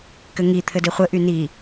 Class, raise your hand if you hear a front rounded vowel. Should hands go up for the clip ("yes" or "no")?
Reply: yes